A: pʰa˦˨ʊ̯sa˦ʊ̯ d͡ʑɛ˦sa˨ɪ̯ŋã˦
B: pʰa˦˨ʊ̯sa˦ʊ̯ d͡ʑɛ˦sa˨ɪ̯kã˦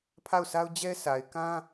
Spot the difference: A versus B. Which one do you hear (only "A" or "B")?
B